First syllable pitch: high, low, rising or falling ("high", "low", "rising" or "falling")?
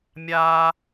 high